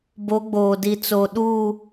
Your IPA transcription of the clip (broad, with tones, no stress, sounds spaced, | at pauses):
b o˨˦ ɡ͡b oː˨ d i˨ t͡s o˨ ɗ uː˦˨